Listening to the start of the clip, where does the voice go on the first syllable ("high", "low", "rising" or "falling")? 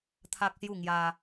high